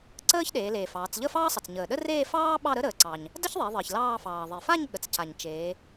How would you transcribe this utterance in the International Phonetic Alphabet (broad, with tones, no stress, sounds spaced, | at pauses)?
ǀ əː˥ ç ɗ eː˩˧ l eː˩ f ɑː˩˧ t͡s ʎ ə˥˧ f ɑː˥ sˤ ə˩ t͡s ɲ əː˩ ɗ ə˥ r eː˥˧ f ɑː˥ ɓ ɑ˥˧ ɾ ə˥ ɾ əː˩˧ ǀ ɑ˩ ɲ | d ə˥ ç ðˤ e˩˧ ðˤ əː˩ ç l ɑː˥˧ f ɑː˩ ðˤ e˩ f a˥˧ ɲ ɠ ə˩ t͡s c a˩ ɲ t͡ʃ eː˩˧